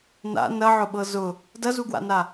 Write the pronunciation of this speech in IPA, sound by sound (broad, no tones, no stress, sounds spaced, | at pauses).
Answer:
n a̰ n ɐ ʕ ʊ ɓ ɤ z ʊ | d ɐ z u ɡ w a̰ n a